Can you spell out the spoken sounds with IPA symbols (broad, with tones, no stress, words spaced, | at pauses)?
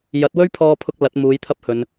jɐ˨˥t̚wɵ˥ɥpʰɔː˧pʰʊ˧k̚ lɐ˨˥t̚ muː˨˥jt̪ʰɐ˥p̚hɵ˨˧n